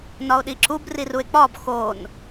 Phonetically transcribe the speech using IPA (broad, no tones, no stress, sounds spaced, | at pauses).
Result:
n ɒ o̯ ɗ i ǁ u b r i r u e̯ k͡p ɒ b x o n